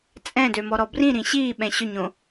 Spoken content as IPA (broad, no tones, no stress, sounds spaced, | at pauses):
t͡sʼ ɛ̃ d ø m ɔ ɾ ɔ b r ĩ ɾ ĩ ɕ iː ɓ ɛ̃ ɕ ɵ ɲ õ